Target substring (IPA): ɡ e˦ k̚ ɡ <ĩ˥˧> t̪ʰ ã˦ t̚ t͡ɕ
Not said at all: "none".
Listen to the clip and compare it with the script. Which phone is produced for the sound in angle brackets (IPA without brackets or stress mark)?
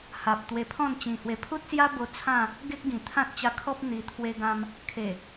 ĩ˨˩